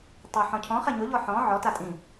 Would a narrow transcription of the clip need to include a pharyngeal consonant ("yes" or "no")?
yes